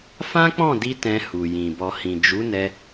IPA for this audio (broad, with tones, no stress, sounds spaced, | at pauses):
f ã˦ k͡p ɔ̃˦˨ d i˧ t ɛ̃˧ h u˨ j ĩ˨ b ɔ˨ h ĩ˨ d͡ʒ u˨˦ n ɛ˧